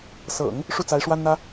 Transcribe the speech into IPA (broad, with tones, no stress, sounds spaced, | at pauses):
s ɤ̰˨˩˦ ŋ | ʂ u˥˩ t͡s a˧˥ ɪ̯ ʂ w a˥ n n̪ ä˥